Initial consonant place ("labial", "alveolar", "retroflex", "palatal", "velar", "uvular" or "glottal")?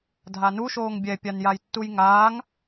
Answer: alveolar